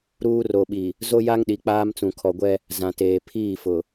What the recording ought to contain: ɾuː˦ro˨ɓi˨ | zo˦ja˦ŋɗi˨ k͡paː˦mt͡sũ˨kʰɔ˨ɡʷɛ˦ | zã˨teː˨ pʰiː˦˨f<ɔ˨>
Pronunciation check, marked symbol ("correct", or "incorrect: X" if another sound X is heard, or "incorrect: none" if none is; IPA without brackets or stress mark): incorrect: ʊ˨